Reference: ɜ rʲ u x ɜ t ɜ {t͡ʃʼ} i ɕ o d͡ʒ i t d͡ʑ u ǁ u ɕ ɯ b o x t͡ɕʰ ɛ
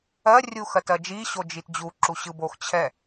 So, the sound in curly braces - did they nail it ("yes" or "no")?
no